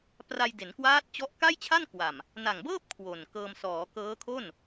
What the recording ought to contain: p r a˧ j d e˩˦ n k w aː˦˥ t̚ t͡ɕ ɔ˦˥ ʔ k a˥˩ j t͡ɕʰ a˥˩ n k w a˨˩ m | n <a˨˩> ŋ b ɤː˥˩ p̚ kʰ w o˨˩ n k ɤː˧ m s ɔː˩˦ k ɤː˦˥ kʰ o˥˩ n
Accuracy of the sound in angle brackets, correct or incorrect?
correct